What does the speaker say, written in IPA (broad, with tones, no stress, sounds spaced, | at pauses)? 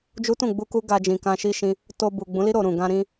d͡ʒ u˦ t ũ˦˨ ɡ͡b u˧ k u˦ ɡ a˧ d͡ʒ ĩ˨ k ã˧ ʃ i˦ ʃ ĩ˧ | t o˧ b u˨ ɡ͡b ũ˨˦ l i˦ ɾ o˧ ɾ ũ˨ ɡ ã˧ ɾ ĩ˧